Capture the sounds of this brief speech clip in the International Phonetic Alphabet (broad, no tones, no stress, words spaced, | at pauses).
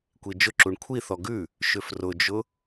kʷid͡ʒʊǁuɳ kʷʰiθɔ ɡʉ | ʃʏfrʊd͡ʒʊ